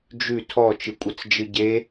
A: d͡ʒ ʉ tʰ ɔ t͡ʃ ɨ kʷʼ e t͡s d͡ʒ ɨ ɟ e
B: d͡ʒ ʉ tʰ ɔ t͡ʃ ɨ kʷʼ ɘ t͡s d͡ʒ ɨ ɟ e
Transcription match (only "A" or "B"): B